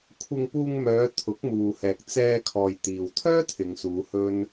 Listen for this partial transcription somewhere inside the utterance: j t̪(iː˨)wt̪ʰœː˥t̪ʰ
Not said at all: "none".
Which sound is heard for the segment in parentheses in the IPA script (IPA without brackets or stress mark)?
iː˨